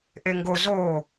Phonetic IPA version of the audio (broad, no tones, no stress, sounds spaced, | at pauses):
ʔ e ŋ ɡ o z o